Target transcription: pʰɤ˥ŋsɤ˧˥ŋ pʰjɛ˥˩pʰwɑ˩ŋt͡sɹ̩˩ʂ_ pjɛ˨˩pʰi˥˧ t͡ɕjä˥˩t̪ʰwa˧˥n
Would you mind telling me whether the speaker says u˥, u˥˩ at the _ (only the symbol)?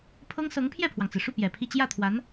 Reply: u˥˩